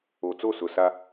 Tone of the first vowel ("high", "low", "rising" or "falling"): low